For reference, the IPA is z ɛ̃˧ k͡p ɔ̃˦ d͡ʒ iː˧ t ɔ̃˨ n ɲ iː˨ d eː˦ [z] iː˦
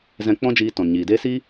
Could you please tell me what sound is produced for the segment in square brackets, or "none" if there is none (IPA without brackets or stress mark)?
s